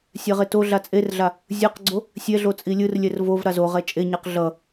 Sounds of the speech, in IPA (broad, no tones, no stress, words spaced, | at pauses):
sʲɛʁetoɮa t͡sʼerɮa | zʲɯqɡ͡ǀo | sʲɛɮo t͡sʼilʲɯrlʲɛr vov ɾazoʁɛ t͡ʃʼeɲaq ɮʌ